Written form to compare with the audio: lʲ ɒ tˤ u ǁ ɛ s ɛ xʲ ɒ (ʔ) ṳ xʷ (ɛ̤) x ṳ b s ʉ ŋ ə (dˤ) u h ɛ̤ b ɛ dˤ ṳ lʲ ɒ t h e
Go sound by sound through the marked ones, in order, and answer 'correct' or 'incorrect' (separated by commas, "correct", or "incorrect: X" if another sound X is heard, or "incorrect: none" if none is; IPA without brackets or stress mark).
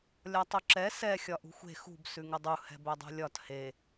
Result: correct, incorrect: e̤, correct